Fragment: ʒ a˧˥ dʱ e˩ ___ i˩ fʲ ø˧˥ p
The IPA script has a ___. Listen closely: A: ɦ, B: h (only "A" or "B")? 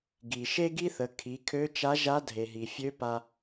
A